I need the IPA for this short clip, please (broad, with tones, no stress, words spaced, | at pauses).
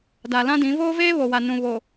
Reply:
da˨lã˦dĩ˨˦ voː˦veː˦βo˨wa˨ nũ˨ βo˨